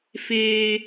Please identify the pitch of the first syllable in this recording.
high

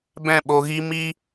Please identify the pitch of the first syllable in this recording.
falling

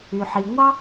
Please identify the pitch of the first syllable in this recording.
low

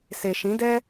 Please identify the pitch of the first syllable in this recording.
low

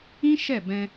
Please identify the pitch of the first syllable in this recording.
high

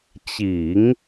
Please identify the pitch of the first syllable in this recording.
low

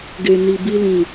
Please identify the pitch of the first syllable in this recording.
low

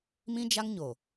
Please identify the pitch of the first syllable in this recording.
high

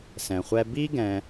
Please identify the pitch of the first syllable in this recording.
low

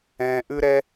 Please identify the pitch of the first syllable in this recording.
low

